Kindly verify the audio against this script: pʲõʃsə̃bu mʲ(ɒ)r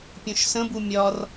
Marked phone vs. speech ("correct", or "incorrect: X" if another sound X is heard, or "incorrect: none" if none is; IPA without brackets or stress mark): correct